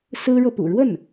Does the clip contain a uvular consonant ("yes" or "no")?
no